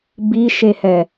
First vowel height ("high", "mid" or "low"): high